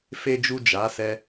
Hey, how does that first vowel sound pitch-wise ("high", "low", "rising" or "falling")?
low